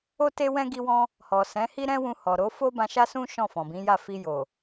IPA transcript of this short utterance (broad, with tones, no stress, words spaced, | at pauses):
o˦te˦wɛ̃˦ ɡi˧wɔ̃˧ | hɔ˨ sɛ̃˨˦hi˦ɾɛ̃˦wũ˧ hɔ˨ɾo˨˦ fo˦bã˧ʃa˦ sũ˦ ʃɔ̃˦˨fɔ̃˨bĩ˨˦ja˦˨ fi˧ jo˨